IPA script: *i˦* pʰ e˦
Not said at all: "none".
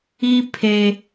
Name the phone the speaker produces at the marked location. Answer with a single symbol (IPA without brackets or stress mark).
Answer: i˦